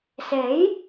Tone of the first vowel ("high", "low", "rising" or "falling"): rising